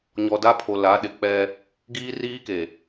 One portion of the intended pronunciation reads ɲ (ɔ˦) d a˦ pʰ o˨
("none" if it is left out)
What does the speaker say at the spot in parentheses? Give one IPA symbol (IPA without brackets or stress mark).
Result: ɔ˨